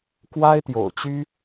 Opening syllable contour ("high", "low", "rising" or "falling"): high